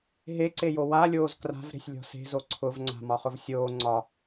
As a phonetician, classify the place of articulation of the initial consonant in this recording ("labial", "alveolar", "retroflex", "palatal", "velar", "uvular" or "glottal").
glottal